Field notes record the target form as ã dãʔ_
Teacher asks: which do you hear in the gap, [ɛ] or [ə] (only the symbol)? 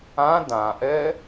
ɛ